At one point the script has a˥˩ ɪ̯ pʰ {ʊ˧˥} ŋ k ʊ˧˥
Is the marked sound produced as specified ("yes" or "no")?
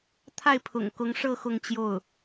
no